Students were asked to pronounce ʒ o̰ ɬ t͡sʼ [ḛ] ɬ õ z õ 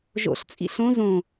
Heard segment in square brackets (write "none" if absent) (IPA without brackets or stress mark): ḭ